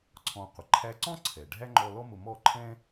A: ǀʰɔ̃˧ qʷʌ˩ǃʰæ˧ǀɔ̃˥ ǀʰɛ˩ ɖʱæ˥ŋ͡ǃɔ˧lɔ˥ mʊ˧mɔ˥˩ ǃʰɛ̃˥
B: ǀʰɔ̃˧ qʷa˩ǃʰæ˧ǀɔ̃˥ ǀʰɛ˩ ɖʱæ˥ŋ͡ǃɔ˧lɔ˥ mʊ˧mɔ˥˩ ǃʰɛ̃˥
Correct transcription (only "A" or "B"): A